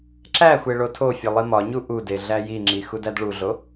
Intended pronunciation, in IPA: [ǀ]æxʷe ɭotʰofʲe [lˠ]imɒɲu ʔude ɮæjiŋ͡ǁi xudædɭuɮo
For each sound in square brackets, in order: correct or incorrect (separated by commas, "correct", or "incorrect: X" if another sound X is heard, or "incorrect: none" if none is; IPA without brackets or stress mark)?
incorrect: ǁ, correct